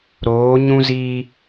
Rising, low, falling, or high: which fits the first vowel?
rising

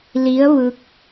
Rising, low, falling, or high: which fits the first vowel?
rising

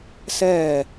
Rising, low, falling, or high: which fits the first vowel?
falling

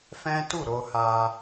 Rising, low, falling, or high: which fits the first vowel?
high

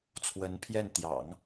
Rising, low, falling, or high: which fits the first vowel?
rising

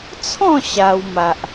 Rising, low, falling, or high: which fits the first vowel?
falling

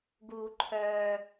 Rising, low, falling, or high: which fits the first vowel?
high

